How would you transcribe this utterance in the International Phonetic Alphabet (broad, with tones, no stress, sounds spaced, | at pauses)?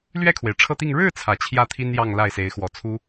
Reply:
l ɥ ɛ˥˩ kʰ w e˩ ɪ̯ ʈ͡ʂʰ ɤ˥˧ t̪ i˥˧ ŋ ɻ ɻ̩˥˩ t͡sʰ ä˨˩ t͡ɕʰ j ä˥˩ t̪ʰ i˥ n j ɑ˥˧ ŋ l a˥˩ ɪ̯ s e˧˥ ɪ̯ x w ɔ˨˩ t͡sʰ u˥